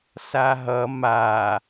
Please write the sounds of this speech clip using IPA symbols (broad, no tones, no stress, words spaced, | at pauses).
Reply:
saɦʌ ma